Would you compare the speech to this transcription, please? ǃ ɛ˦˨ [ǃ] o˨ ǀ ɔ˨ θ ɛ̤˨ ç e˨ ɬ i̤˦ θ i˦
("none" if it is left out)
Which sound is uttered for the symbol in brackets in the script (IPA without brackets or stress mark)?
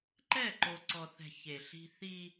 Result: ǃ